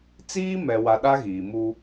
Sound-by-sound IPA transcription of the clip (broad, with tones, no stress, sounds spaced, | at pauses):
t͡s iː˦ m ɛ˨ w a˨ ɗ a˦ ɣ iː˨ m u˦